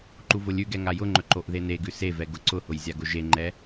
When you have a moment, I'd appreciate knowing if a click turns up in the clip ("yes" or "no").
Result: yes